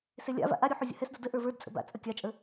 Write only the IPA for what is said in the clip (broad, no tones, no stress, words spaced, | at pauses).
selʲa̰va̰ ʔaɾʲu ħuzʲə̰hɛsdo də ʔə˞və˞dt͡sʼə̰ ba̰t͡sʼə kʲat͡ʃʼə